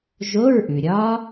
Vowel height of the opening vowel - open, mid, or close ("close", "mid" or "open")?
mid